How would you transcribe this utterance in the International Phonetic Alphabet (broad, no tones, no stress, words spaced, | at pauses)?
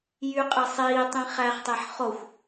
jyqʼe sˤiːtˤĩ χæχtˤeħ χoxʷ